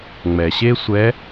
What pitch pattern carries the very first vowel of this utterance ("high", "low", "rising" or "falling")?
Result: low